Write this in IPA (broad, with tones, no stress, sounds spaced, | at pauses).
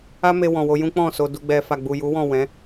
a˦ m e˧ w ɔ̃˨ w o˧ j ũ˦ k͡p ɔ̃˦˨ s o˧ d u˧ ɡ͡b ɛ˧ f a˨ ɡ͡b u˨ j u˨˦ w ɔ̃˦˨ w ɛ̃˨˦